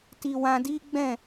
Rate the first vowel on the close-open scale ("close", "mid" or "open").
close